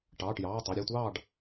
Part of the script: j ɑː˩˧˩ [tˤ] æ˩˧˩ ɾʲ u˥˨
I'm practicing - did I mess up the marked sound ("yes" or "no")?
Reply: no